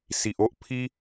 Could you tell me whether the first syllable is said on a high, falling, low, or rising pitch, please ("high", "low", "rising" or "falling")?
low